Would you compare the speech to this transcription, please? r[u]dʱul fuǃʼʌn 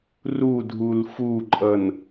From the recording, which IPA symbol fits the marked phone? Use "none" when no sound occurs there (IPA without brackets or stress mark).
u